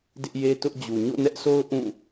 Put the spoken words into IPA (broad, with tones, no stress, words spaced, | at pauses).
dɪ˦ʔje˦tʊ˦ʔ d͡ʑu˨ ɲo̰˦˨nɛ˦ʔso˦ʊ̯ ʔũ˦˨